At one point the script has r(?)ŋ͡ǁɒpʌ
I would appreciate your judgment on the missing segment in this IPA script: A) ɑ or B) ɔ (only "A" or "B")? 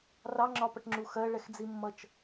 A